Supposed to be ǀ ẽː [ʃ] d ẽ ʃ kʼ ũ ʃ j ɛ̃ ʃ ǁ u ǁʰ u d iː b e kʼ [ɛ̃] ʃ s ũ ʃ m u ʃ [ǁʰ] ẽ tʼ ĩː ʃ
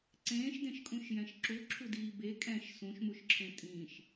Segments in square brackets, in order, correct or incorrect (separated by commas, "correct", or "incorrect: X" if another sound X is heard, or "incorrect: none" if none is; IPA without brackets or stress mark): correct, correct, correct